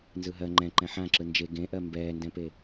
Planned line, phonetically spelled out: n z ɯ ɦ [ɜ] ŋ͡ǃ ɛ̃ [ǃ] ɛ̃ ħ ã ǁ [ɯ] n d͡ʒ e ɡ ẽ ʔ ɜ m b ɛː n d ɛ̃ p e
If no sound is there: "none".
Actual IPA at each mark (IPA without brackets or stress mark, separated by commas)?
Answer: ɜ, ǃ, ɯ